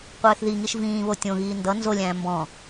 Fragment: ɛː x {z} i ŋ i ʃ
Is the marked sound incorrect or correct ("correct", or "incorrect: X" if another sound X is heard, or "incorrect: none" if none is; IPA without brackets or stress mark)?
incorrect: ð